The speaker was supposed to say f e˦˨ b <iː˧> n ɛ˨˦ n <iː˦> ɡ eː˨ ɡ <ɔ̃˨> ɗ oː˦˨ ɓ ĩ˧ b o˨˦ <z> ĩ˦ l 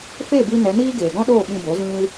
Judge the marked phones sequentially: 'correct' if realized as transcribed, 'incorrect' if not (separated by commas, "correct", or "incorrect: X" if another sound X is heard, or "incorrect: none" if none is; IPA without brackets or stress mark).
incorrect: i˧, correct, incorrect: ɔ̃˦, correct